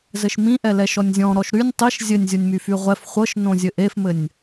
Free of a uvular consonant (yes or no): no